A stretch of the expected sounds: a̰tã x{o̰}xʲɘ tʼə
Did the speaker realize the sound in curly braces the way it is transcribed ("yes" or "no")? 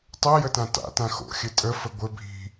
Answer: yes